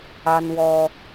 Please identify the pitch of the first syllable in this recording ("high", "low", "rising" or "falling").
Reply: high